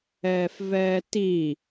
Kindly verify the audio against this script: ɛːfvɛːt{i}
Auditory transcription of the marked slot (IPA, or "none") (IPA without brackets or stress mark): i